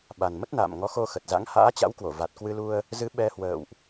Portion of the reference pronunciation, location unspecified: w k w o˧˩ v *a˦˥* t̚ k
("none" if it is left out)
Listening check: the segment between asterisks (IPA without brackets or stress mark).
a˨˩